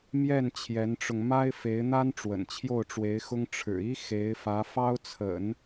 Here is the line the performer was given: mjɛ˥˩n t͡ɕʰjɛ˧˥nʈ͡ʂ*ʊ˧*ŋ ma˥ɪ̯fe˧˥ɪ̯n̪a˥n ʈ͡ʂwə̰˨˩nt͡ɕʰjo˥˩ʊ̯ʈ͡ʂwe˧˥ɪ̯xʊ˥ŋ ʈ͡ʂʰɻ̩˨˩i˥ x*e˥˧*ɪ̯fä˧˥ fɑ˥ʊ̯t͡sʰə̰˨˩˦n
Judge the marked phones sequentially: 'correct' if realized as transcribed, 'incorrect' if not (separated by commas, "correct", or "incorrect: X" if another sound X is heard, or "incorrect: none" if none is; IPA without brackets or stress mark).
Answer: correct, incorrect: e˧˥